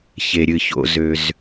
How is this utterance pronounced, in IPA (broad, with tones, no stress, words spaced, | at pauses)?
çe˩ɾʲɨ˩ ço̰˩ zø˩z